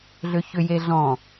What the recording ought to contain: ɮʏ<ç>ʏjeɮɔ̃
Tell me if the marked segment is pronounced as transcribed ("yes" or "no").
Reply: yes